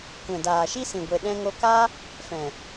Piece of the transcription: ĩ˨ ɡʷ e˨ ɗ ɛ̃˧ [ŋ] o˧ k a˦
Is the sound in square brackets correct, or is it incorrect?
correct